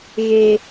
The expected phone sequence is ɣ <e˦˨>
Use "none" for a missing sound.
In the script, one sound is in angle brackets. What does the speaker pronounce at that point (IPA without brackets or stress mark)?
e˦